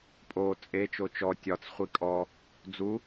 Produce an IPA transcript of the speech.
pʼ o t͡sʼ e t͡ʃ o t͡ʃ ɔ tʲ ɒ t͡s χʷ i kʼ ɔ | d͡z u

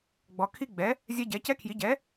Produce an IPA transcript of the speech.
ɡ͡b ɔ˩˧ kʰ i˦ ɡ͡b ɛ˩˥ | zʲ ɛ˦ ɟ ɛ˩˥ c ɛ˦ kʰ j i˩˥ ɟ ɛ˩˥

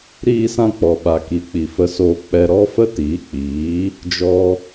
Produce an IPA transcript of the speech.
ɾ iː˧ s ã˧ k͡p ɔ˨ ɓ a˨ k i˨˦ k͡p i˨ f ə˧ s oː˧ k͡p ɛ˧ ɾ ɔ˦ f ə˦ t iː˨˦ k͡p iː˨˦ | d͡ʒ ɔ˦

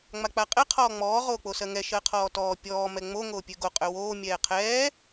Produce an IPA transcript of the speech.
ŋ͡m a k͡p a qʼ ɛ qʰ ɔː ŋ͡m ɔː ʁ oː k͡p o s ɜ ŋ ɛ ʃ ɜ qʰ ɔː t ɔː pʲ ɔː m ɛ ŋ͡m o ŋ oː pʲ ø ɡ o qʼ ø w oː mʲ ɛː qʰ ɛː

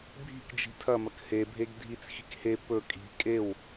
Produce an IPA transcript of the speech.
bʱ i̤ k d͡ʒ i̤ tʰ ɐ m ɐ k h e bʱ e ɡ dʱ i t͡s x i̤ k h e p ɵ kʼ i̤ kʼ e w

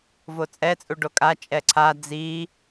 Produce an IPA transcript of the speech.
v o t͡sʼ ɛ t͡sʼ u ɖ o kʼ a t͡ʃʼ ɛ ǀʰ a d͡z i

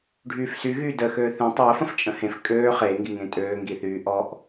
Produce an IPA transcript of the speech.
ɖʱ yː f s y ɣ yː d əː x øː θ ĩ tˤ əː f ə̃ f t͡ʃʼ ə̃ h ẽ f kʼ øː χ eː ŋ ɡ i ŋ ẽ tʼ øː ŋ ɡ i θ yː ʔ ɔ ʔ

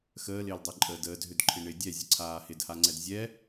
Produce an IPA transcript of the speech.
x əː l ɪː l dˤ ɛ ǃʼ əː d əː d ɦ ʏ d ǃʰ ɪ ɳ ɪ dʲ ɛ zʲ ə ǀʰ aː h ɪ d h a ŋ͡ǀ ɛ d zʲ ɛ

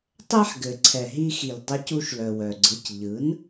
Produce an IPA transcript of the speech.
tˤ ɛ˥ ħ ɡ ɘ˩ ǀʰ ɛ˩ ɦ i˧ x i˩ l dˤ ɛ˧ c u˧ ʃ l œ˩ w œ˩ ɡ͡ǀ ɯ˩˥ c ʎ ɯ˩˥ n

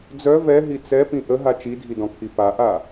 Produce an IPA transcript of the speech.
d͡z œ v ɛ ɦ i t͡s ɛ p ĩ ʔ ə ɦ a t͡ʃ i dʱ i d ɔ̃ kʰ i p a ʔ a

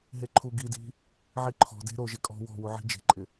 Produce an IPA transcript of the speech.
ɦ e ǃʰ u ɡ i d i̤ | ʕ i ǃʰ ɔ̤ d e̤ ɾ o ʒ ɪ kʼ ɔ̤ w ɔ̤ w u ʕ i̤ d͡ʒ e̤ ǃʼ ɪ

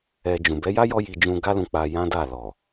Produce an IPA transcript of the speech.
ɛ˧ d͡ʒ ũ˨ b ɛ˨˦ j a˦ j ɔ˦ j i˧ d͡ʒ ũ˧ ɡ a˦ l ũ˧ k͡p a˧ j ã˦ d a˦˨ l ɔ˨

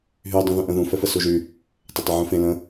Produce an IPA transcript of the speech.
ɦ y dˤ ũ ð ũ ʔ ə̃ ð ũ f ɛ f ə s u ʒ y | tˤ ɐ tˤ ʏ ʕ ũ f ẽ l ə̃

